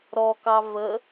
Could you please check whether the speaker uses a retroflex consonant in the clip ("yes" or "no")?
no